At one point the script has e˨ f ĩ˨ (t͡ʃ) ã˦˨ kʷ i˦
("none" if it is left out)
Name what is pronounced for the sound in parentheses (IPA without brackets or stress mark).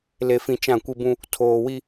t͡ʃ